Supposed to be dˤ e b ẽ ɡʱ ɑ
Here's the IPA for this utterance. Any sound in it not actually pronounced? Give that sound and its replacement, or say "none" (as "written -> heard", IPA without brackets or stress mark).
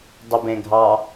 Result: e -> i